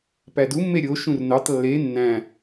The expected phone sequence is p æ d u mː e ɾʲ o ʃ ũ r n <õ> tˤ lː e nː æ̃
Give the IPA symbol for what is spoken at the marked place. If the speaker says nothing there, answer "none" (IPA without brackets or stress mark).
o